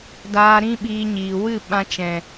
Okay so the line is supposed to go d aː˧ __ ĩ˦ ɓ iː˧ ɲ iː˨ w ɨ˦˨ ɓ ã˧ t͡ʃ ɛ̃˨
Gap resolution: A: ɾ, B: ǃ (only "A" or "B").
A